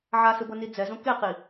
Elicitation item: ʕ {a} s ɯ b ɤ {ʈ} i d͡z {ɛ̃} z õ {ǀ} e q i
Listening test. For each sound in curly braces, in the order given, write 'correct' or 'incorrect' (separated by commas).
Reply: correct, incorrect, incorrect, incorrect